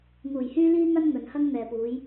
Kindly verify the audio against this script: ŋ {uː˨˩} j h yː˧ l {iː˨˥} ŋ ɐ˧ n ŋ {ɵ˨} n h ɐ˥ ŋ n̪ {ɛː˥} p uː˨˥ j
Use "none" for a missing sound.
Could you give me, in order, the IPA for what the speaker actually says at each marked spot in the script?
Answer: uː˨˩, iː˧, ɵ˨, ɛː˨

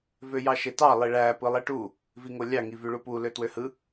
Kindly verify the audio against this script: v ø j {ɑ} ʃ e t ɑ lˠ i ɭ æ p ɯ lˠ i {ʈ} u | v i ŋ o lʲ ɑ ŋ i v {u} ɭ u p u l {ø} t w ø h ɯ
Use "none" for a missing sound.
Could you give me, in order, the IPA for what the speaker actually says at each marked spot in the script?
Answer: ɑ, ʈ, y, ø

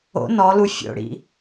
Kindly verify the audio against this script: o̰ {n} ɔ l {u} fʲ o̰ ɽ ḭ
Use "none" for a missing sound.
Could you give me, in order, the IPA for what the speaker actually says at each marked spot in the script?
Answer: n, u

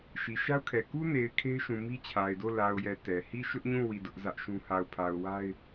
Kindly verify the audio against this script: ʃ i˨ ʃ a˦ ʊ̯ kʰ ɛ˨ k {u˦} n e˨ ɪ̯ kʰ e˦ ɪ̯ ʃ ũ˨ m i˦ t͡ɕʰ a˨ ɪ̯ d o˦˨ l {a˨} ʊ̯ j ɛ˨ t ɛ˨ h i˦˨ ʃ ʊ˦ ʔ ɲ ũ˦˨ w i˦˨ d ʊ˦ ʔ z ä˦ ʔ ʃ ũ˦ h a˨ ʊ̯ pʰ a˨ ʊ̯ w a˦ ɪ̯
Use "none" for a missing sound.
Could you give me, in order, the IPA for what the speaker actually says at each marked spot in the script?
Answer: u˦, a˨

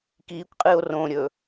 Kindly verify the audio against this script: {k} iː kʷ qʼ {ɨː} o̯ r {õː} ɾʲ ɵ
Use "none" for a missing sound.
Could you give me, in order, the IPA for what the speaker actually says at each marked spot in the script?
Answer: k, ɨː, õː

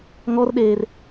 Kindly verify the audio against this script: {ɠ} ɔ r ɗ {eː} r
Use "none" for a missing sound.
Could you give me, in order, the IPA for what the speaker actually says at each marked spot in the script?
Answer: ŋ, eː

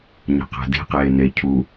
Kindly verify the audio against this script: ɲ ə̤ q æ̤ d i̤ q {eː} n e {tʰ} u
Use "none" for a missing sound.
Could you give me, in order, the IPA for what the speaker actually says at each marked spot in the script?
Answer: eː, cʰ

